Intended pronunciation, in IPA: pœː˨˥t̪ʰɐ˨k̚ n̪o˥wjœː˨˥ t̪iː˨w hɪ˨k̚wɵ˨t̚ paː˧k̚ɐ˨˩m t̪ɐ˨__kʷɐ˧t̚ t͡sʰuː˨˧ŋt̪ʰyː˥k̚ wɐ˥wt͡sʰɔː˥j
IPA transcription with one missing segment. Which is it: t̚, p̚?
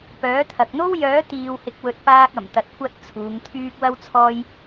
t̚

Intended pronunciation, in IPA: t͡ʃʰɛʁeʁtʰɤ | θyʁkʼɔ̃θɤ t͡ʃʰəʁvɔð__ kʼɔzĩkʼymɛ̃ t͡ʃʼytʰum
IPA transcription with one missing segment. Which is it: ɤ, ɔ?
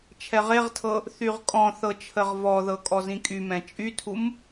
ɤ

